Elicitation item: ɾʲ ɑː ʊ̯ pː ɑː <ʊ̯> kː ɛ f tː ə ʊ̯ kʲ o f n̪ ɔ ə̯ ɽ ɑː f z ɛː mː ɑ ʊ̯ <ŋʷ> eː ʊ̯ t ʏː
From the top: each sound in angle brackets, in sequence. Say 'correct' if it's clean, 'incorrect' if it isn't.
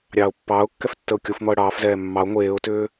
correct, correct

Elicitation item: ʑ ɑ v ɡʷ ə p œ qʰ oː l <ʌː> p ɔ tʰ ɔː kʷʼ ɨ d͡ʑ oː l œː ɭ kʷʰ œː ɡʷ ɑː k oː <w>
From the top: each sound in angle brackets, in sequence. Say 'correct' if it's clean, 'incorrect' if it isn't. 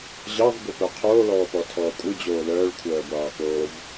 incorrect: ɔː, incorrect: v

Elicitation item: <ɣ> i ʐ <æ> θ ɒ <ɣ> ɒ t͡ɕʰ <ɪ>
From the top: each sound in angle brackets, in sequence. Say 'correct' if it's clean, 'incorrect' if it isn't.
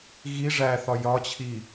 correct, correct, incorrect: j, incorrect: i

